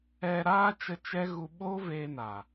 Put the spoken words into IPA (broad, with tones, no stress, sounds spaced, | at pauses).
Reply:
ɛ˧ ɾ aː˦ t͡ʃ ə˧ t͡ʃ ɛ˦ ɣ u˧ ɓ oː˦ v eː˧ n a˨